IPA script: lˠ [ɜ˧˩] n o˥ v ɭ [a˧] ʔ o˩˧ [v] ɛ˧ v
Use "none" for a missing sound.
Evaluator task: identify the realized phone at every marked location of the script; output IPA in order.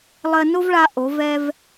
ɜ˧, a˧, v

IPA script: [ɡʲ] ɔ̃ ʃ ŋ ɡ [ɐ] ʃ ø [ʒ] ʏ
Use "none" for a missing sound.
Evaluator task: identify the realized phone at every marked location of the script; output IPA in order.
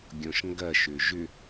ɡʲ, ɐ, ʒ

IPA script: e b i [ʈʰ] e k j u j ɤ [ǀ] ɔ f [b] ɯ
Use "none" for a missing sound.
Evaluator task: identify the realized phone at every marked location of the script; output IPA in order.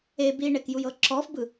ɳ, ǁ, b

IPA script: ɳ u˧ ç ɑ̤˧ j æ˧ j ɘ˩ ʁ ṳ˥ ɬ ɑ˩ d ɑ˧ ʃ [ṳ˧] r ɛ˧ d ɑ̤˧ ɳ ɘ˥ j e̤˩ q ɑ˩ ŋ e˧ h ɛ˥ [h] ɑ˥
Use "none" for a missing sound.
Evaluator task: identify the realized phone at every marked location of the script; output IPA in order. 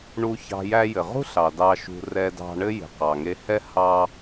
ṳ˧, h

